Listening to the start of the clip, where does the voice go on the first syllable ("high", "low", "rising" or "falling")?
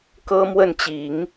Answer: high